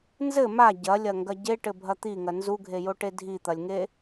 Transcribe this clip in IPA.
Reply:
n z ɘ m a ɟ ɐ lʲ ɐ ŋ ɡ ɐ ɟ e ʈ ɘ bʱ ɐ t̪ i ŋ ɐ n z u ɡʱ e j o ʈ e dʱ i t̪ ɐ lʲ ŋ e

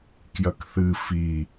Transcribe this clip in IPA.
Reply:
k j ɐ k θ ɨ f i

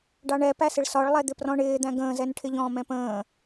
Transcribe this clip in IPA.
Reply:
ɖ ɑ ɳ ɛ p æ s ɪ ɭ s ɒ ɭ lˠ ɛ d̪ ɪ p r ɔ̃ ɳ ɪː d̪ æ̃ ɡ ə̃ː z ɛ n ʈʰ ɪ ʎ ɔ̃ː m ɛ̃ p ə̃ː

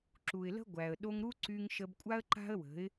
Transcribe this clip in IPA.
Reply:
ǁ u˨ ɪ̯ l ə̤˦ ɡʷ æ˨ ə̯ ɗ o˧ ŋ ɾ u˦ ǀ y˧ ŋ ʃ ə˧ b kʷʼ a˦ ə̯ ǃ a̤˦ ə̯ w ə̤˨˦ ɪ̯

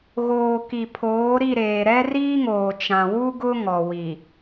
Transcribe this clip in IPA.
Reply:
ɣ oː˨ k i˨ pʰ oː˨˦ ɾ i˦˨ ɾ eː˨ ɾ ɛ˦ r iː˦ ŋ oː˨ t͡ʃ ã˨ w u˦ ɡ ʊ˦ ŋ ɔ˨ w i˨

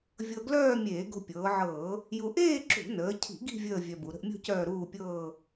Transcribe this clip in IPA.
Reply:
vʲ ɤ˧ ɡ l œː˥˧ mʲ eː˧˩˧ ɡ o̤˧ pʲ ɤː˩˧ ʕ ɤː˧˩˧ | j u˧ ʔ eː˥˧ ǁ ṳ˧˩˧ n əː˩˧ cʰ i̤˧˩˧ ɡ i̤˥˧ vʲ əː˥˧ vʲ œ˧ b u˩˧ ɾ ə̤˧ ʔ mʲ o̤˥˧ c œː˥˧ ɾ uː˥˧ pʲ ɤː˥˧

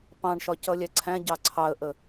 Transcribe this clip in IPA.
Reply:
p ɑ̃ ɳ ʃ ɒ c ʌ lʲ æ ǀʰ æ̃ ɟ ɑ ǀʰ ɑ ə̯ ʔ ə

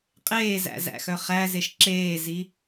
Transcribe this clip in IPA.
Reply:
qʼ eː z æ̰ z æ̰ x œ χ æ z e ʃ ǁ eː z i

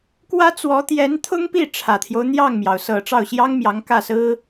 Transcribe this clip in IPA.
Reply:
k w ä˥ t͡s w ɔ˧˥ t̪ j ɛ˧˥ n t̪ʰ ʊ˥ ŋ p i˥˩ ʈ͡ʂʰ ä˨˩ t̪ʰ j o˦ ʊ̯ n̪ j ɑ˥˩ ŋ m j ɑ˩ ʊ̯ s ɤ˨˩ ʈ͡ʂ ɑ˥˩ ʊ̯ ɕ j ɑ˥ ŋ m j ɑ˧˥ ŋ k ä˥˩ s ɹ̩˥

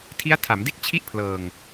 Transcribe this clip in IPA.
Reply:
tʰ i˦˥ a̯ tʰ a˩˦ m d e˥˩ k̚ t͡ɕʰ i˥˩ ʔ pʰ l ɤː˨˩ ŋ

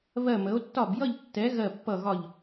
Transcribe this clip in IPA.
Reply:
β ɜ˦˨ m ə˨˦ o̯ tː ɒ˦˨ b j ʌ˦˨ ʎ tː ɛ˨˦ ɣ ɜ˦˨ pː ʌ˦˨ ɣ ɒ˦˨ ʎ

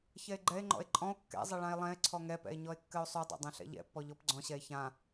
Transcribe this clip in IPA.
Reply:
ç ɛ e̯ ɡ͡ǃ ɛ e̯ ŋ͡ǃ ɔ̰ e̯ ǃʼ ɔ̃ o̯ kː ɛ̰ zˤ ɘ ɭ ã e̯ lˠ ɛ̃ e̯ ǀʰ ɔ ŋ ɛ p ɛ̰ e̯ ɲ ɔ e̯ kː ɘ o̯ sˤ y dˤ ɛ̰ dˤ ɛ̃ ɬ ɛ̰ ʎ ɛ̰ pː ɔ ʎ ɔ p ɡ͡ǀ ɔ̃ ɕ ɛ e̯ ç ã

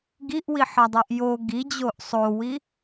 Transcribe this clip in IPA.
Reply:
ɡ i ʔ w i ħ ɒ dˤ e ʔ j o ɡ i d͡ʑ o ʔ sˤ o w i

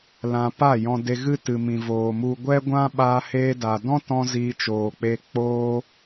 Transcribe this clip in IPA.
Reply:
l ã˧ p a˦˨ j ɔ̃˧ d e˧ ɣ ɨ˦ t ɨ˨ m ĩ˨ v oː˨ m u˧ ɡʷ ɛ˦ ɡʷ ã˦ ɓ aː˧ h eː˧ d a˨ d ɔ̃˦ t ɔ̃˧ z iː˧ t͡ʃ oː˨ k͡p e˧ k͡p oː˦

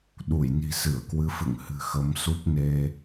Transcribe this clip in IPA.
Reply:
ɗ u˧˩ j n i̤˨˩ s ɨ˧˩ ə̯ k w ɨ˨˦ f ɨ̰˧˨ ŋ h ɨ̤˨˩ x ə˨˦ m s u˦˥ p̚ n e˧

